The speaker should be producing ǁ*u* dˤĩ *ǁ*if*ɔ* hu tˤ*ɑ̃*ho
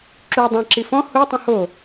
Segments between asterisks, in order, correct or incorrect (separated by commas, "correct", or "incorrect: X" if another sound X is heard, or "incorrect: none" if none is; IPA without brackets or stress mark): correct, correct, incorrect: ɔ̃, incorrect: ə̃